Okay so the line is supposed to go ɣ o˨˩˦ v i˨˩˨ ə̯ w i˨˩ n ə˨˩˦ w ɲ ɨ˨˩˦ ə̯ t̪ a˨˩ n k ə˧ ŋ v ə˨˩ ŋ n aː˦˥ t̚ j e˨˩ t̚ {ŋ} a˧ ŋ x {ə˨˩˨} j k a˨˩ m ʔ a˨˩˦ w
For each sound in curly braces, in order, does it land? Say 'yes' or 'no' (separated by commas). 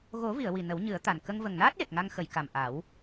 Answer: yes, yes